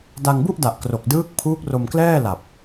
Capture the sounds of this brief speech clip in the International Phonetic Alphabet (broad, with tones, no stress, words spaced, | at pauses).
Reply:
da˧ŋbu˥˩ʔda˨˩ʔ kro˨˩k̚ dɯː˦˥k̚ pʰuː˦˥k̚ro˧mklɛː˥˩la˨˩p̚